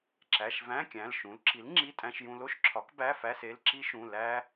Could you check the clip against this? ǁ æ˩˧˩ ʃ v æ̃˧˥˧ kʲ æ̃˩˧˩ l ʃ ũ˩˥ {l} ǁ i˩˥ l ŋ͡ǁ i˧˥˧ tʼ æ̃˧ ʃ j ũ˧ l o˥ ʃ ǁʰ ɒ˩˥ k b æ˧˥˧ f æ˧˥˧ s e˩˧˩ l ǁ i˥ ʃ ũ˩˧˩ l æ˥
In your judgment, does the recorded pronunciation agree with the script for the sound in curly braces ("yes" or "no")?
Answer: yes